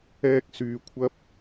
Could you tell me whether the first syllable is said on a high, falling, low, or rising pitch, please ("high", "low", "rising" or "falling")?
high